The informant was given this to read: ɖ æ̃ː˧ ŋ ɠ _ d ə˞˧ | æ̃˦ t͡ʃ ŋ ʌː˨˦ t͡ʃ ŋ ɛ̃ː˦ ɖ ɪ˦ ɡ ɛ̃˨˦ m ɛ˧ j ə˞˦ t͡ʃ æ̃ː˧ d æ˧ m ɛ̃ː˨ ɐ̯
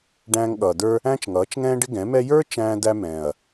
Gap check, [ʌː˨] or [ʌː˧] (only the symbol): ʌː˨